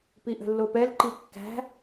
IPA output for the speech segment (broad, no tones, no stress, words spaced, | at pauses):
piʔə̤lːopɛl ǃikːæ̤